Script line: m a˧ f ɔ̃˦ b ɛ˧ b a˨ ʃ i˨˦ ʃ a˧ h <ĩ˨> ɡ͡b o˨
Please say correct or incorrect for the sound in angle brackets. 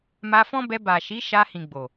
correct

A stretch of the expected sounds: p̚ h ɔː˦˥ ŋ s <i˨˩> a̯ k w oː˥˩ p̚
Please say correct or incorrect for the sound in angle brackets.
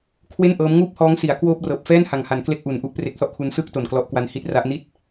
incorrect: i˩˦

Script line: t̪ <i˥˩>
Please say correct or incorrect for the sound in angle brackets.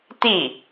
correct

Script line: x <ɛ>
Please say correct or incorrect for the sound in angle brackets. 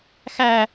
incorrect: æ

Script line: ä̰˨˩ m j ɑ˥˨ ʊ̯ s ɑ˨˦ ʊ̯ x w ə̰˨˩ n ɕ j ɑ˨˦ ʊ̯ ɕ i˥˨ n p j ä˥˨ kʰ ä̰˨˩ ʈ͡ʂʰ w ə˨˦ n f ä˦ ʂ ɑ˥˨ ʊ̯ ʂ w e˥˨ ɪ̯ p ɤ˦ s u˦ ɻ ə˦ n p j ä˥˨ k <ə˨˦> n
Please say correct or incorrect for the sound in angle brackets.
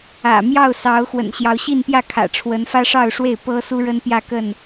incorrect: ə˥˨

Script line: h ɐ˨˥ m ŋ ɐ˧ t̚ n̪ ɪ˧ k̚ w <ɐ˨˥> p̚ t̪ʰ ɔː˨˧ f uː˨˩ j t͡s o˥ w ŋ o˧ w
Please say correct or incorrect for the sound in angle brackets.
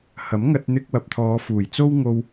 incorrect: ɐ˨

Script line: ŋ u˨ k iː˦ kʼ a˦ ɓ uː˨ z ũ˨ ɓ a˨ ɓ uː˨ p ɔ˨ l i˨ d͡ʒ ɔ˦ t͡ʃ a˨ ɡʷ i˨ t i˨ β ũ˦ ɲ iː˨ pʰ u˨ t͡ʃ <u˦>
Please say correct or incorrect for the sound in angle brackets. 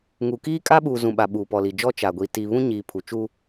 correct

